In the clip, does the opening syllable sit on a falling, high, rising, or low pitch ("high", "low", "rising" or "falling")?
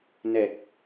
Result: low